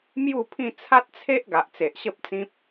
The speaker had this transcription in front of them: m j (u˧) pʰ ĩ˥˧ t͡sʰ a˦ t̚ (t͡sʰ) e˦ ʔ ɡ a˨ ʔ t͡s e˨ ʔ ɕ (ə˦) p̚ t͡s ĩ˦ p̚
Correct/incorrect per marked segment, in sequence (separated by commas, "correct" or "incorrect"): incorrect, correct, correct